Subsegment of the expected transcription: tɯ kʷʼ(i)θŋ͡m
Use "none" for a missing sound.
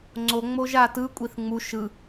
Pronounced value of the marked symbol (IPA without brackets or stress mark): i